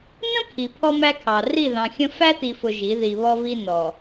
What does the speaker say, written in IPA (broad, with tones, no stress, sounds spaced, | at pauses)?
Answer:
n ə̃˦ pʰ i˨ pʰ ɔ˦ m æ˦ kʰ ɑ˨ r i˦˨ ð ɑ̃˨ xʲ ə̃˦ f æ˦ t i˨ f ʊ˨ ʒ i˨˦ ð i˨ β ɔ˦ v i˦ n ɔ˨